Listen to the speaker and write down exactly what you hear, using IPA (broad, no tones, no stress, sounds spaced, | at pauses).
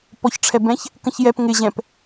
p ɔ ç ʈ͡ʂʰ ɛ b ɛ̃ ç | k ə̃ ç j ɛ p ŋ ɪ ʑ ɛ̃ p